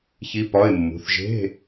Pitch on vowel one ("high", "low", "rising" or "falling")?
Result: rising